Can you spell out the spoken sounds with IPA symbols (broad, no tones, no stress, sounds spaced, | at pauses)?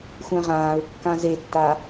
xʷ ɛ̃ ʁ ãː ɹ kː ã z e tː a